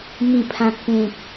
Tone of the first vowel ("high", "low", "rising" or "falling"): falling